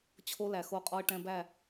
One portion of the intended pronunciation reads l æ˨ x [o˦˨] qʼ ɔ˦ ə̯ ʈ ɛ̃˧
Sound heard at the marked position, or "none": o˦˨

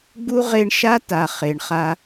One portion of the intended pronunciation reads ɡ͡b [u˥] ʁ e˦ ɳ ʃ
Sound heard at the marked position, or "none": u˥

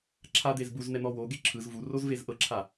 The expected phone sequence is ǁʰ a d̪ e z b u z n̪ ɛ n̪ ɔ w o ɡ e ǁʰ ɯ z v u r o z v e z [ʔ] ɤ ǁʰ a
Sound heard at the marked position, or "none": ʔ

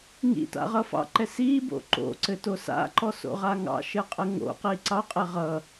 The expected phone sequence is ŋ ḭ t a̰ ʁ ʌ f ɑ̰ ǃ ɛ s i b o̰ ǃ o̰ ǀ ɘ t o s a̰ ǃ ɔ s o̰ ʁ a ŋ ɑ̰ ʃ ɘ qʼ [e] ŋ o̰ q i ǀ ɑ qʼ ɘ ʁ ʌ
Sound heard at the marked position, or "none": ɘ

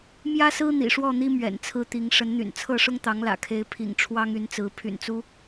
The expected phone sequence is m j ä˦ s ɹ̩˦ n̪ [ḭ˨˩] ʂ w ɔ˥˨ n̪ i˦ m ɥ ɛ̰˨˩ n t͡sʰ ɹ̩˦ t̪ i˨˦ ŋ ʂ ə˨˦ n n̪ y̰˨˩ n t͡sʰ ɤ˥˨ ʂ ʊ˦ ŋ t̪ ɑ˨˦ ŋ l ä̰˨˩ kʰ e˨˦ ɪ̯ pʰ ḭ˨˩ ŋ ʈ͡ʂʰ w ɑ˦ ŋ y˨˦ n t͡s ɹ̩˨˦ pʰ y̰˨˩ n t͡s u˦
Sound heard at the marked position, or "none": ḭ˨˩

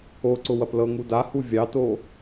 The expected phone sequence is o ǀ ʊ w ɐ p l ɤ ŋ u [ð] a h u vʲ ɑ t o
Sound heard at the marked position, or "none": d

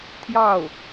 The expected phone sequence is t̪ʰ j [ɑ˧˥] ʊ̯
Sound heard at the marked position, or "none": ɑ˥˩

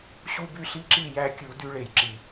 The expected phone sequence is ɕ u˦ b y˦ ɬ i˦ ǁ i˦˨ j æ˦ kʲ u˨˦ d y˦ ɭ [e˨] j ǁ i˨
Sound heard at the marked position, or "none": e˨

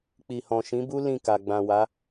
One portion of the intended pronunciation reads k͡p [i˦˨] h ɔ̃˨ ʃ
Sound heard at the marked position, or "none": i˨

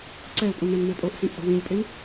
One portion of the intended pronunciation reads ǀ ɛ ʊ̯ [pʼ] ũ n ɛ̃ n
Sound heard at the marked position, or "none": pʼ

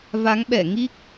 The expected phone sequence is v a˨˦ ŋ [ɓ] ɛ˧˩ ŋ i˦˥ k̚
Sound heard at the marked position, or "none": ɓ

